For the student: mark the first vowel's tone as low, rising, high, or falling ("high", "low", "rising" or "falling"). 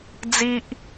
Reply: high